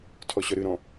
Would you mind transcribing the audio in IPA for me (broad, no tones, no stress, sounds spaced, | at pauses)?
tʰ ɔ ɕ œ ɾ ɨ ɾ ɔ̃